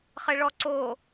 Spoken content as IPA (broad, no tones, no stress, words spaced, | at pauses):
χɘɭɔǀo